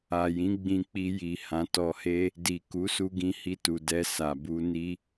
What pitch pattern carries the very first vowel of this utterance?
low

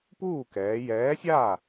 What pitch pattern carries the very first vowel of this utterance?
falling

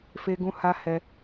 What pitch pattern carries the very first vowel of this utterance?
high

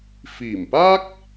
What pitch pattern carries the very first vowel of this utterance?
low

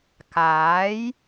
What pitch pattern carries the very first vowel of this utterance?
rising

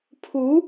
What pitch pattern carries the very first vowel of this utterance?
rising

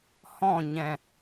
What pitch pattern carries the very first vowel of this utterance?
falling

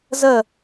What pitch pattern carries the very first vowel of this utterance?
falling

